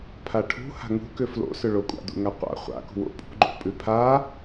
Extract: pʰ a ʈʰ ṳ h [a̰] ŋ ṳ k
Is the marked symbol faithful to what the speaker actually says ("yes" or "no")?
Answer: no